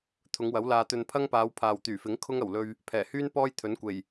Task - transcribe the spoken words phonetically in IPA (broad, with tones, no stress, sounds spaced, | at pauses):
t̪ʰ ʊ˨˧ ŋ w ɐ˨˥ w l aː˧ t̪ ɵ˧ n pʰ ɐ˥ ŋ p aː˨˧ w pʰ aː˨ w t̪ yː˨˩ f ɪ˨˥ ŋ kʰ ʊ˥ ŋ ɐ˨˩ w l ɵ˧ ɥ | pʰ ɛː˨˩ h yː˥ n p ɔː˥ j t̪ʰ ɵ˨˥ n kʷ e˨˩ j